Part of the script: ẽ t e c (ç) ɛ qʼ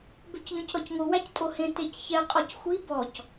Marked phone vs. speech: correct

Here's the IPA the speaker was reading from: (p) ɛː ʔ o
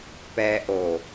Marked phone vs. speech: correct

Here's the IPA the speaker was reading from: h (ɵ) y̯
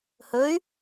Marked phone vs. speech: correct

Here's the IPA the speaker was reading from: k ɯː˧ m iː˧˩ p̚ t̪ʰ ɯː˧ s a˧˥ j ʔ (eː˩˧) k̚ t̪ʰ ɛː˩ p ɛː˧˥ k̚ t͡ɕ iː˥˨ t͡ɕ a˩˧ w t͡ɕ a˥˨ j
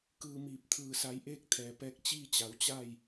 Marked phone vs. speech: incorrect: eː˥˨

